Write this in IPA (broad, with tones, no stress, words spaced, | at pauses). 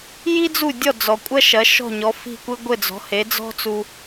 ji˥d͡zu˥˩dʲɔ˥˩ d͡zɔ˩kʷʼɐ˥ ʃɐ˩˥ʃɔ̤˥˩ɲɔ˩˥ fi̤˥˩kʷɘ˥ ɡʷɘ˥˩d͡zɔ̤˩˥he˩˥ d͡zɔ̤˥t͡su˧